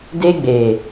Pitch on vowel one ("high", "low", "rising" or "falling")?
high